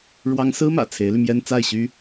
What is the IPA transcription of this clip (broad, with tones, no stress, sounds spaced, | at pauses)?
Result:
ɻ w ɑ˥ ŋ s ɹ̩˥ m ä̰˨˩ t͡sʰ e˧˥ ɪ̯ l y˧ m j ɛ˥ n t͡s a˥˩ ɪ̯ ɕ y˥